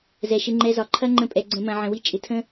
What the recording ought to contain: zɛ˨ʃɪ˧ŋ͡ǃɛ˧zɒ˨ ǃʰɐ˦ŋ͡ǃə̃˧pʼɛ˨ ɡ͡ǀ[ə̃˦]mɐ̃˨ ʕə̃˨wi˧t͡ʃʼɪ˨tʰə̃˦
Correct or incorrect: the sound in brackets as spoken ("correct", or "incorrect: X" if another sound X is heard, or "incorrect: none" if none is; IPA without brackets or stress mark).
incorrect: ə̃˨